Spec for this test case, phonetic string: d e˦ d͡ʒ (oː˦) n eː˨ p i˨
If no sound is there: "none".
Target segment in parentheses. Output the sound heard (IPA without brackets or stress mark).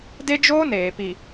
oː˦